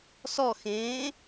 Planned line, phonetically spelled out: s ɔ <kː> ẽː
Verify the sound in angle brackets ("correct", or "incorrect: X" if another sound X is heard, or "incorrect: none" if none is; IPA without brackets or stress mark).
incorrect: x